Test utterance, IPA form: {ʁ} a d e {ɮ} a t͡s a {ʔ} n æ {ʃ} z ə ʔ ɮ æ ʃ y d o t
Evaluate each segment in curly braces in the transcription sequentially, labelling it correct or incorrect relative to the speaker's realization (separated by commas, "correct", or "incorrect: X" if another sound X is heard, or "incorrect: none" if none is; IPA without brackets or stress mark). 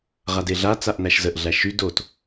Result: correct, correct, correct, correct